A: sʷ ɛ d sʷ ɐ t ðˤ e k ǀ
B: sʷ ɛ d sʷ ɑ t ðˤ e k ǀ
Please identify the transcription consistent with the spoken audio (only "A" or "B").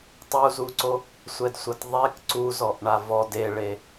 A